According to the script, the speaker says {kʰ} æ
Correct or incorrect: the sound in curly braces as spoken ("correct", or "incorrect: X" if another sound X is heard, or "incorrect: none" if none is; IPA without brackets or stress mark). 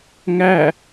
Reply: incorrect: ŋ